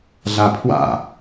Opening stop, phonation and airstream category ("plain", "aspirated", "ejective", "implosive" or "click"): aspirated